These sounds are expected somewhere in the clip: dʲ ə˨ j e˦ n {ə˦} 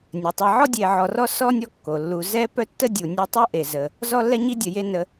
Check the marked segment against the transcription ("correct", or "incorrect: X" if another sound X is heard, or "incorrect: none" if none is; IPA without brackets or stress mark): incorrect: ə˨